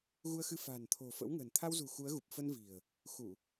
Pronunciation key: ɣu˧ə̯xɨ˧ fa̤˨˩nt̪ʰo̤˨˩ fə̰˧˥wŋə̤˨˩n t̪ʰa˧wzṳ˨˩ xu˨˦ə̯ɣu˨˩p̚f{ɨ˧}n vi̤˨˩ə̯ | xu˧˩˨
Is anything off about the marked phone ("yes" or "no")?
yes